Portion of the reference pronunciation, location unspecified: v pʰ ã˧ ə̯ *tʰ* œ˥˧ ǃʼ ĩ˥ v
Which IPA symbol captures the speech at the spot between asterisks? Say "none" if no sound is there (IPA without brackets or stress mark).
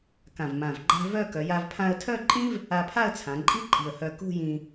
tʰ